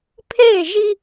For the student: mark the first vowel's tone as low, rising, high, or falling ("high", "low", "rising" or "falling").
falling